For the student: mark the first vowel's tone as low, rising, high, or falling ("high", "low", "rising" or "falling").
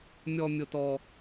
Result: high